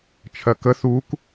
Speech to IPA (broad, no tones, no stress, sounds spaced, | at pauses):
t͡ʃʰ ɜ k ə θ u k